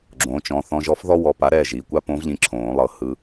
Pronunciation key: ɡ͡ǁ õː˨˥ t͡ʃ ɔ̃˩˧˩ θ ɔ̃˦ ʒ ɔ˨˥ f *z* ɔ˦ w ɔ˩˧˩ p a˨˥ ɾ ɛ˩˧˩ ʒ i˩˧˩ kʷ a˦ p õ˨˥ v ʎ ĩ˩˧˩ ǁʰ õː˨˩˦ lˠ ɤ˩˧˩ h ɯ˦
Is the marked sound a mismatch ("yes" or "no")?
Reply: yes